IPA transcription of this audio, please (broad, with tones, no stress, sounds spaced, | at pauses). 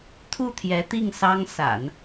t̪ʰ u˥˩ t̪ʰ j ɛ˧˥ t̪ i˥˩ ŋ s ɑ˥ ŋ s a̰˨˩˦ n